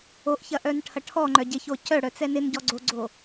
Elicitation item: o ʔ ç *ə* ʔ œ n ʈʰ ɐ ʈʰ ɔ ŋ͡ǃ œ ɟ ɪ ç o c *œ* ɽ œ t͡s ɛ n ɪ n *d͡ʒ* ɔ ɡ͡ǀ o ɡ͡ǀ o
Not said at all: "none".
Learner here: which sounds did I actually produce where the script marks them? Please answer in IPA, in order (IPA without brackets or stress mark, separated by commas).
ɐ, œ, ɟ